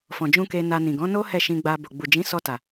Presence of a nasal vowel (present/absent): present